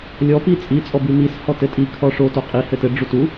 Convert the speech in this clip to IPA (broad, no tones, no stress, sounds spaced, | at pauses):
lʲ ɔ p i t͡sʼ i t͡sʼ ɔ b i m i s h ɔ t ɘ tʼ i kʰ ɔ ʂ o t o qʼ i h ɘ t ɘ ɖ͡ʐ u t u